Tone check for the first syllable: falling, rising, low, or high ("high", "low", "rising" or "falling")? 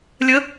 rising